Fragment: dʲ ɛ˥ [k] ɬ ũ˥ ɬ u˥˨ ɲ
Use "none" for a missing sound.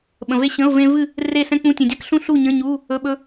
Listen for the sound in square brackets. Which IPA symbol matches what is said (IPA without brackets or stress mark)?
k